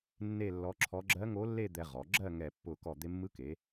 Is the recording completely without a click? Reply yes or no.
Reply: no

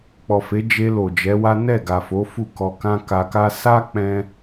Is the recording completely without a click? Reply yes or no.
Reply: yes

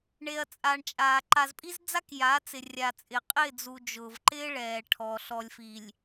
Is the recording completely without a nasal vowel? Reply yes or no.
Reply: yes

